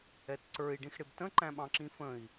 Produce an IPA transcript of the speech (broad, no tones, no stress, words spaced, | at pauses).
ɛtǀə˞i̯ ɖĩxɽɪbtə̃ ǃæ̃ɓɑ̃ǁĩfə̃i̯